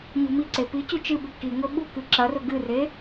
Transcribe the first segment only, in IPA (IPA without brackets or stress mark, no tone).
ɲ